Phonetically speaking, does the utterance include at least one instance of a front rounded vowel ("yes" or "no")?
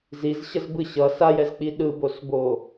no